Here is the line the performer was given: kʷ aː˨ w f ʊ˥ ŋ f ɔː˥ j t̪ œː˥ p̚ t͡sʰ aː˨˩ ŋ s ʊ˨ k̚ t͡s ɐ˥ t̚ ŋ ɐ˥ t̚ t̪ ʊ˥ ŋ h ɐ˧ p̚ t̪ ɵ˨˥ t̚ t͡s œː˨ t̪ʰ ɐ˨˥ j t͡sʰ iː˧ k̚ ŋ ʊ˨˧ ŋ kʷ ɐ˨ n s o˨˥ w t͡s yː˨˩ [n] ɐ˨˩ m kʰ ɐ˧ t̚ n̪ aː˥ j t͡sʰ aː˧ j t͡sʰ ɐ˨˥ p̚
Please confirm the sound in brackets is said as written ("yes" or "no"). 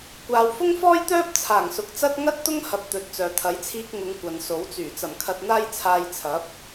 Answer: no